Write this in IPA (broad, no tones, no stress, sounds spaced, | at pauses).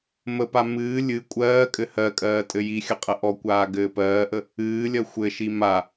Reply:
m ə p a m ɨː lʲ ɨ kʷʼ ɜː kʼ ɘ h ɜ kʼ ɜː tʼ ɘ j i xʲ ə qʼ ə ʔ ɔ kʷ aː ɡ ɘː p ɜː ʔ ə | ɨː lʲ ɜ xʷ ɘ ʃ i m a